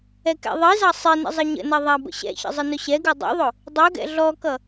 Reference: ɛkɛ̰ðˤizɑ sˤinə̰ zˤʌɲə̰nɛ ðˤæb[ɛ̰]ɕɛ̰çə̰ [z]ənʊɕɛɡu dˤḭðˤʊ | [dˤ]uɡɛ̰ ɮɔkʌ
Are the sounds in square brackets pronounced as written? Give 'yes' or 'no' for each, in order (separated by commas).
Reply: no, no, yes